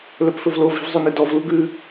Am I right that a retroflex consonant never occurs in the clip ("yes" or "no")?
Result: yes